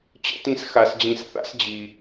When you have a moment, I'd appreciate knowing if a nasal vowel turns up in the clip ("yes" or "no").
yes